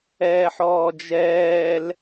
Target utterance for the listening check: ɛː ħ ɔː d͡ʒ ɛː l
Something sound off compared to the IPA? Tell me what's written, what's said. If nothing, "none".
none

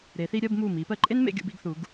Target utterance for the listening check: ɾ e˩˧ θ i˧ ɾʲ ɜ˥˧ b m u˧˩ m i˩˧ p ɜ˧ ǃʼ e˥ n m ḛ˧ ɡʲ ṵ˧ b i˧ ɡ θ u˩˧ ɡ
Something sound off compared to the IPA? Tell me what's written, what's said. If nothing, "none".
none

